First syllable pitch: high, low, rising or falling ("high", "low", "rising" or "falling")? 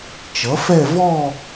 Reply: rising